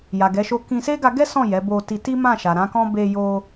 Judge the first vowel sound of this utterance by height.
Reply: low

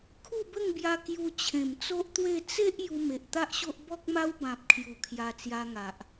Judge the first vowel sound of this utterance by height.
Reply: high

